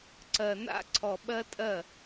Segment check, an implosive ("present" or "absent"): present